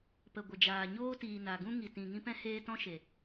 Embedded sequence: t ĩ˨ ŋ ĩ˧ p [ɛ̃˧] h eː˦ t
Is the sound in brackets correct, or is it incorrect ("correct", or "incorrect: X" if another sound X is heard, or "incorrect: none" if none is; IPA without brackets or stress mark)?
correct